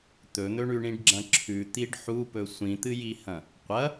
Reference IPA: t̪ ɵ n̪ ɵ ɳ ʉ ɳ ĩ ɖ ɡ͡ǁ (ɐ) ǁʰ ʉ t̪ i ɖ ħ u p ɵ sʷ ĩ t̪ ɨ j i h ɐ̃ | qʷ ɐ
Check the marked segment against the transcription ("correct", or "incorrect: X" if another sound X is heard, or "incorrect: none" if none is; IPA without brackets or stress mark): incorrect: ɐ̃